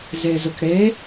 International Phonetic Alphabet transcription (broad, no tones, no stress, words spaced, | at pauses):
zezʊkɽe